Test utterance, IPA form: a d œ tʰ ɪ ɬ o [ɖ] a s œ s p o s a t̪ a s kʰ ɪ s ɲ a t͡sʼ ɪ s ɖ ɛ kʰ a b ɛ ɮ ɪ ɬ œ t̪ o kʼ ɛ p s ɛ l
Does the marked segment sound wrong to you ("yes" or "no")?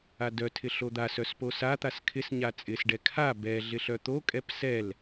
yes